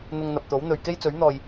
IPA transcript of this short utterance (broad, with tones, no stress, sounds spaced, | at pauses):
n̪ ʊ˧ ŋ n̪ ɐ˨ p̚ t̪ o˨˥ w n̪ ɵ˨ ɥ k e˥ j t͡s ɵ˨˥ ɥ n̪ ɔː˨ j